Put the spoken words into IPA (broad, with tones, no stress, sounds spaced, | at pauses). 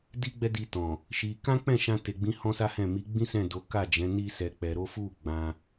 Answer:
d i˦ ɡ͡b ɛ˦ d i˧ t ɔ̃˨ | ʃ i˧ k ã˦ k͡p ɛ̃˦˨ ʃ ã˧ t e˨ ɡ͡b ĩ˨˦ h ɔ̃˦ s a˦ h ɛ̃˦˨ m i˨˦ ɡ͡b ĩ˦ s ɛ̃˦˨ d o˨˦ k a˦˨ d͡ʒ ɛ̃˨˦ n i˦ s ɛ˧ k͡p ɛ˧ ɾ o˦ f u˦˨ ɡ͡b ã˧